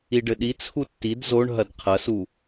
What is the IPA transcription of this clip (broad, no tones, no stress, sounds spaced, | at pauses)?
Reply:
i ɖ ɘ ɗ i t͡sʰ u tː i d z o ɳ ɦ ɐ d qʰ ɐ s u